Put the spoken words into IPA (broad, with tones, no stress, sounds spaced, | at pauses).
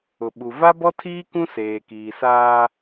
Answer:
ʊ˨ ɓ u˨ v a˦ b ɔ˦ tʰ iː˦ k ũ˦ s eː˨ k iː˨ s aː˦